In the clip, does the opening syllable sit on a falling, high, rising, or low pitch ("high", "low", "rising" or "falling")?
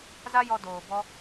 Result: high